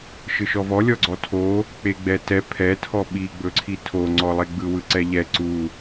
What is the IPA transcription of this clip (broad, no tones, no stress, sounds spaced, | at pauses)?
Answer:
ʃ ɯ ʃ ɔ v ɔ lʲ ɔ ɡ͡ǀ ɔ tʰ o | k͡p e ɡ͡b ɛ t ɛ pʰ ɛ tʰ ɔ ɓ i ɡ͡b ɵ ǀʰ i tʰ o ŋ͡ǀ ɔ lˠ e ɡ͡b ɯ w ɯ ǀ ɛ ʎ ɛ ǀ u